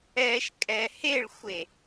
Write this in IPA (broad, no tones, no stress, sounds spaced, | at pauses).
ɛ ʃ kʼ ɛ h e ɭ xʷ e